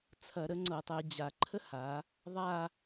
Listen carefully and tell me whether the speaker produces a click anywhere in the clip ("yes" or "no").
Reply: yes